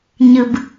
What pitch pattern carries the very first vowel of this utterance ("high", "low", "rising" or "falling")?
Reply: low